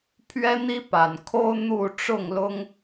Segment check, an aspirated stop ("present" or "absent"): present